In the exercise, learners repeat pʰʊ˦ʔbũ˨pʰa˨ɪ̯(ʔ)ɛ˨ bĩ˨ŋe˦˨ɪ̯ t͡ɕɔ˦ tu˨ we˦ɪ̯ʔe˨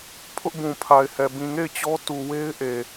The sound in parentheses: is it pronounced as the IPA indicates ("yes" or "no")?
no